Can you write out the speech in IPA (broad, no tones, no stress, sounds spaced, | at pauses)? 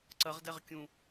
ǀ ɐ ʁ d ɛ ʁ kʲ ũ